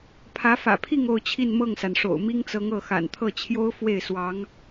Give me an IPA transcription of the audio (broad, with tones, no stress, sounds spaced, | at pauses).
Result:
pʰ ä˧˥ f ä̰˨˩ pʰ i˥˧ ŋ o˥˧ ʊ̯ t͡ɕʰ i˥˧ n m ɤ˥˩ ŋ s a˩ n ʂ o̰˨˩ ʊ̯ m i˥ ŋ t͡s ɤ˧˥ ŋ ɤ˥˩ x a̰˨˩ n t̪ʰ ɤ˥˩ t͡ɕʰ j o˥ ʊ̯ f w e˥˩ ɪ̯ s w ɑ˧˥ ŋ